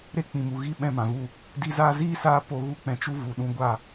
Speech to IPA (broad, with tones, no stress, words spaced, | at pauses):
ɾe˧ k͡pĩ˨mu˨ ɣi˧ ɓɛ̃˧mã˨vu˦˨ | di˧ zaː˧ziː˦saː˧ po˧ ɣu˧k͡pɛ̃˨ t͡ʃu˧vu˨ ɗũ˧ɡʷa˦˨